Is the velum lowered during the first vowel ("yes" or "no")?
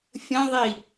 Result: yes